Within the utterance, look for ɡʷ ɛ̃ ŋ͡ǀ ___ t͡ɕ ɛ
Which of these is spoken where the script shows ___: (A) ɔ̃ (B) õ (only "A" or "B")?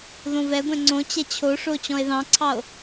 B